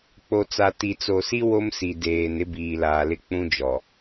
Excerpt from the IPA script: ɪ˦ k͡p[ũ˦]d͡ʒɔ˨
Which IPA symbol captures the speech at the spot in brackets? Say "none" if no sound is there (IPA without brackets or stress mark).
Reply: ũ˦